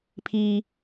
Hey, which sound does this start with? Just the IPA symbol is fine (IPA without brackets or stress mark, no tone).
pʰ